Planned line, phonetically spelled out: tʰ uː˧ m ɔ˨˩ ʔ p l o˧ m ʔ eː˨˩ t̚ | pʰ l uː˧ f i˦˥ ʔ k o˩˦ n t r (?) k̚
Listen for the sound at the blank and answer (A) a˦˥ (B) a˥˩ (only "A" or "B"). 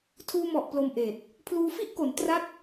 B